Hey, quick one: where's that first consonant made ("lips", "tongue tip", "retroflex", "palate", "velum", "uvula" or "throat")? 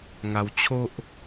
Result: velum